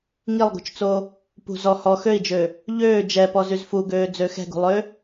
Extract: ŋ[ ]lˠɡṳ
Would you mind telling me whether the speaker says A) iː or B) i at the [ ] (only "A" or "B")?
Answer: B